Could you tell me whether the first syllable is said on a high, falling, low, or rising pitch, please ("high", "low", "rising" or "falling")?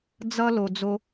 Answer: high